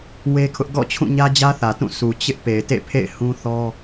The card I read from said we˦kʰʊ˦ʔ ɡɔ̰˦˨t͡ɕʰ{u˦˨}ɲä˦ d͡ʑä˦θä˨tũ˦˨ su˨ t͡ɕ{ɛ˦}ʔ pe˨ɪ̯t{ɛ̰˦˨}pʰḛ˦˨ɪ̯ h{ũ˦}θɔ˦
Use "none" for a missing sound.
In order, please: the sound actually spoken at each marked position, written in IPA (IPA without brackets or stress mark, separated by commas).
ũ˦˨, ɪ˦, ḛ˦˨, ũ˦